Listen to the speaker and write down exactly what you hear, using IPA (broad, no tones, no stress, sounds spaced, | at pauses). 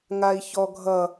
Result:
ŋ a i̯ ç ɔ ɡʱ ʌ